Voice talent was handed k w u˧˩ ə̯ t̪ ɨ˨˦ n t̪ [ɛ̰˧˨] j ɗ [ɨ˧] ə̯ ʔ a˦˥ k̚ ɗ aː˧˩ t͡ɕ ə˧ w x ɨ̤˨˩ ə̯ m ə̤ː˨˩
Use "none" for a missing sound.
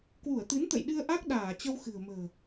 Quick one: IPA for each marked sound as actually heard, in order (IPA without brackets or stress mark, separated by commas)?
ə̰˧˨, ɨ˧